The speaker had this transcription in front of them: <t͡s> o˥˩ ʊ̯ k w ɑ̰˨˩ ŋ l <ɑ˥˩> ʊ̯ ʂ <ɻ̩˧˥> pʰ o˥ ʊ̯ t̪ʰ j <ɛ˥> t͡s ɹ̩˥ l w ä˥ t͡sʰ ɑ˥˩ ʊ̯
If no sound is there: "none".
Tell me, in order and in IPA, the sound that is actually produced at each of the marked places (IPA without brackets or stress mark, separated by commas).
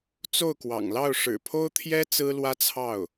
t͡s, ɑ˥˩, ɻ̩˨˩, ɛ˥